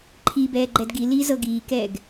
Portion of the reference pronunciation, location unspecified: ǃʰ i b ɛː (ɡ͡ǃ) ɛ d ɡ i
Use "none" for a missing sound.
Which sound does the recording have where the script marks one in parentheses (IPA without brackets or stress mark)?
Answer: ɡ͡ǃ